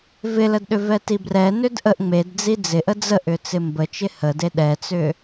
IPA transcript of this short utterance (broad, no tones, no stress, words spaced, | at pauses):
vɪlədɗʏ vɛtibrɛ nʏdʔəʔ ŋ͡med d͡zid͡zɪʔə d͡zəʔʏ t͡sɪmbət͡ʃɪ həde ɗɛt͡sʏ